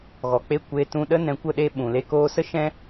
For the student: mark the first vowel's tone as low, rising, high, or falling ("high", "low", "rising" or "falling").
low